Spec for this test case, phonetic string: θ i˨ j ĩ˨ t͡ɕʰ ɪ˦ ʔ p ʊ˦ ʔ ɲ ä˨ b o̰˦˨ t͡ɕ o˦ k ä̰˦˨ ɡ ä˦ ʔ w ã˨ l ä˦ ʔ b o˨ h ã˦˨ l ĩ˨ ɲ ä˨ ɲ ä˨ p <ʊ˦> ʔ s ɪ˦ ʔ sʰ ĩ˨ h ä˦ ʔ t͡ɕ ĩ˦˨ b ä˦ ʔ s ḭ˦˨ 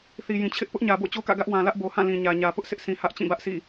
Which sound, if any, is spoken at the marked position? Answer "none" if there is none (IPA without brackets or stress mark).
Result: ʊ˦